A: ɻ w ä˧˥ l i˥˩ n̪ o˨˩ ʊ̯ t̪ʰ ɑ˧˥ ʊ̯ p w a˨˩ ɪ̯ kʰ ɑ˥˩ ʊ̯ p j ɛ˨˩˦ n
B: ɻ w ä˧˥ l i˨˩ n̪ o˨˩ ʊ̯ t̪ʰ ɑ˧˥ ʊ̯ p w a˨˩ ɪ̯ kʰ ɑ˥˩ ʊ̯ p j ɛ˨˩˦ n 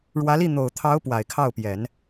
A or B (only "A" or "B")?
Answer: A